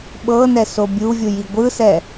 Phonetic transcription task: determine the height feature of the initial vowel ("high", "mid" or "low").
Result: mid